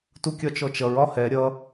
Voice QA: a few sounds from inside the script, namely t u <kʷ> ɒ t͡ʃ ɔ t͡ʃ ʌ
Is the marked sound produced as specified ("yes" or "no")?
no